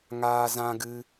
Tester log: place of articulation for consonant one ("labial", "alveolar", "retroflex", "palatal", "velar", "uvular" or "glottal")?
velar